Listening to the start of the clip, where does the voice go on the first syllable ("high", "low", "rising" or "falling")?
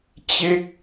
falling